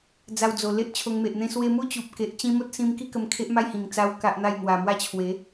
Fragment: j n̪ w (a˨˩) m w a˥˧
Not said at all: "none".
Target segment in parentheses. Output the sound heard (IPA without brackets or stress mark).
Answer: a˨˩